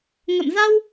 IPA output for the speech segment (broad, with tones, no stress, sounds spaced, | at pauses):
ŋ ə̰˧˨ m z a˧ w